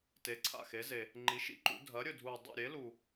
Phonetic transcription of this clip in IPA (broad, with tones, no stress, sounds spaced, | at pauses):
t e˩˥ ǀʰ a̰˨˩ x e˩˥ z e˨˩ | ŋ͡ǃ i˩˥ ʃ ḭ˩˥ ǃ ṵ˩˥ dʱ ɐ˩˥ ɾʲ ɵ˨˩ dʱ u˨˩ dˤ ḭ˨˩ ɾʲ e˩˥ l u˨˩